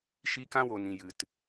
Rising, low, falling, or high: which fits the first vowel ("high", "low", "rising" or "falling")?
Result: high